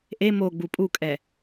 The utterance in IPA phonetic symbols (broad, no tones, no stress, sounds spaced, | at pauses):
ʔ e m o ɡ͡b u pʼ u kʼ ɛ